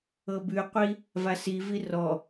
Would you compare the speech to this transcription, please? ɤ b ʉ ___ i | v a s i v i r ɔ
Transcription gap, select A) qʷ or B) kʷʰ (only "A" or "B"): A